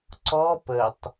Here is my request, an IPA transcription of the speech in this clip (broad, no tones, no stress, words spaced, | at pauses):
ǀɔ pətˤ